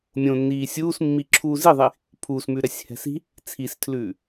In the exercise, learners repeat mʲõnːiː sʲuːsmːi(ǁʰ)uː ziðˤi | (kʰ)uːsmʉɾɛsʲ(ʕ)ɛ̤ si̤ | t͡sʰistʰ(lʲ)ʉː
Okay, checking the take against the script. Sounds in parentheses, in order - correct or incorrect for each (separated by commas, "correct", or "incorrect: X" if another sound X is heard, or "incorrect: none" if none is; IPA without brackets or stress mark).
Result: correct, incorrect: pʰ, incorrect: h, incorrect: l